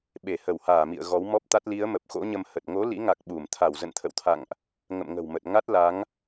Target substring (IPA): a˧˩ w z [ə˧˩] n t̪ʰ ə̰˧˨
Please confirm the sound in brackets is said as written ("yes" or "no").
no